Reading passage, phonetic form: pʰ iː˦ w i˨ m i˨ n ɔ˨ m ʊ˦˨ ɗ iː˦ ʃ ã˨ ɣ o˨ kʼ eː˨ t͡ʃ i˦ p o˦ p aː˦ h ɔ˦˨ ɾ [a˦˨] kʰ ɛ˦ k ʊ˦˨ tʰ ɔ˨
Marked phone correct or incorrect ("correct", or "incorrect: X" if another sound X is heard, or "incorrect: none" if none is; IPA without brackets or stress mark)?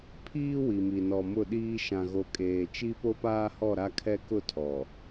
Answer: incorrect: a˦